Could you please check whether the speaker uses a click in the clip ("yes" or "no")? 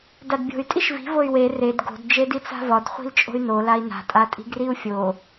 no